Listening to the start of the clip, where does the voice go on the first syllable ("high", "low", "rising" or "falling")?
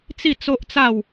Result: falling